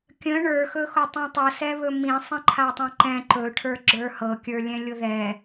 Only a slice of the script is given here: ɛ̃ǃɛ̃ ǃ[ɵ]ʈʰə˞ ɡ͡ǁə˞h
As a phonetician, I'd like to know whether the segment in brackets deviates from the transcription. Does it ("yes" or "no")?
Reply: no